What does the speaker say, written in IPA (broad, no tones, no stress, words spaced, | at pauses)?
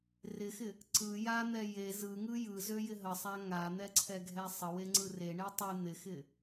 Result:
rɪxɪ | ǀɯ jan̪ɛ je zɯŋɯ jɯzøjɪ ɦəsˤa ŋan̪ɛǀʰɛɡʱɛ sˤəweŋ͡ǀɯ reɳe tˤɯ n̪ɪxɪ